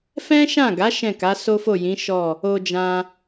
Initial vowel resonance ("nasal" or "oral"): nasal